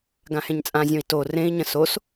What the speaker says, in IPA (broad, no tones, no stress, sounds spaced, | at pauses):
ɡ ã h ẽ ɲ t͡sʼ ã zʲ õ i̯ t o r ẽ i̯ ɲ ə̃ s o s